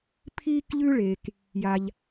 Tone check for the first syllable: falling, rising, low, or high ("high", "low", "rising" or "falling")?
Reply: high